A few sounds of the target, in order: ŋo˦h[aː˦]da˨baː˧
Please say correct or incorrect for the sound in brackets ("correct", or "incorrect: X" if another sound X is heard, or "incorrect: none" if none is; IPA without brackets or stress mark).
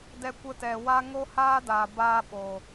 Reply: correct